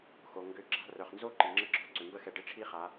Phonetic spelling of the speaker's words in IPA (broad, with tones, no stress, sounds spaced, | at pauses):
x o˩ ŋ ɡ ʏ˧˥ ǁ a̤˧ r œ˩ χ n z o˥ ǃ i˩ ŋ͡ǁ ə˥ ɡ͡ǁ ɔ̤˧˥ ǀ ʏ˩ m b ə˥ x ɛ˧ ɖ ɪ˧˥ ʈ͡ʂʰ i˥ χ a˩˧